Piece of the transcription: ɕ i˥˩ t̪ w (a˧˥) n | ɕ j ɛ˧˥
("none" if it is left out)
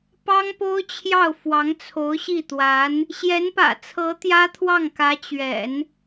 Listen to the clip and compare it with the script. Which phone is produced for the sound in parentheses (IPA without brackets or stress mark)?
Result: a˧˥